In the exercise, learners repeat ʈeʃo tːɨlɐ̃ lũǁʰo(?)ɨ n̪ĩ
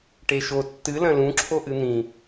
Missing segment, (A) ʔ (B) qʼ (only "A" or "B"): A